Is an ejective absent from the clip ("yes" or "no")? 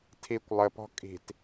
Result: no